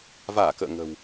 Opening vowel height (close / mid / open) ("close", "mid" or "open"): open